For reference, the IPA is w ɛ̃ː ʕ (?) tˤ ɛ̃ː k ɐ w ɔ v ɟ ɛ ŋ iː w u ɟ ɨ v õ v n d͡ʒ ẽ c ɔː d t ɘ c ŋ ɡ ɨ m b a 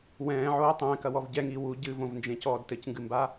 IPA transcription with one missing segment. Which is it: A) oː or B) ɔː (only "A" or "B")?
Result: A